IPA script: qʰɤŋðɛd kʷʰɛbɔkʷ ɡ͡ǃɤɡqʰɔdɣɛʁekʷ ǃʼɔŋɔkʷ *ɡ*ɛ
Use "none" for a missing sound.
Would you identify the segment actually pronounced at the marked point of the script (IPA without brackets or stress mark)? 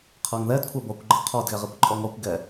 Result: ɡ